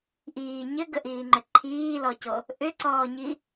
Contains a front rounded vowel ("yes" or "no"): yes